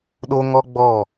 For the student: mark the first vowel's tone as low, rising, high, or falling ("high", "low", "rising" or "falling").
high